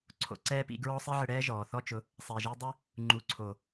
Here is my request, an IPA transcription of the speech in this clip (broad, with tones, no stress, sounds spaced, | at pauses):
ǀʰ o̰˨ ǀ ɛː˦ p ḭ˧ ɡ ɹ ɔ˦ sˤ i˦ ʕ ɪ˧ ɽ ɛː˦ ʒ ɔː˨ θ ɔ˧ t͡ʃ ʊ˨˦ | sˤ e˨ ʒ i˧ dˤ ɪ˦ | ŋ͡ǃ u˨ ǀʰ o˨